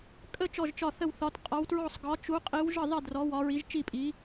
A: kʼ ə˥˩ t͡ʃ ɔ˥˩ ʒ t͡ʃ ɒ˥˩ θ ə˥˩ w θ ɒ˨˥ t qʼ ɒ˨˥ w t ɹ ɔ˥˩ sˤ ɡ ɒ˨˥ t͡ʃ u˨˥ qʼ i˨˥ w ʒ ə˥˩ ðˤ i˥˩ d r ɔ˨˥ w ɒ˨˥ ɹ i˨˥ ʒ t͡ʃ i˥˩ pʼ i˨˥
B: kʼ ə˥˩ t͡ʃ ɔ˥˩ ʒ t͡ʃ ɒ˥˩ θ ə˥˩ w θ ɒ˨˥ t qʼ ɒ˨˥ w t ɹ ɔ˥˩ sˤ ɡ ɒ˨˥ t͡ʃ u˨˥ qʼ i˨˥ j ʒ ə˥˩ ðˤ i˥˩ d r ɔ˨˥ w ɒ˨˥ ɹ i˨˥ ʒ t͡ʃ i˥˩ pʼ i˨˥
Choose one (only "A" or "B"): A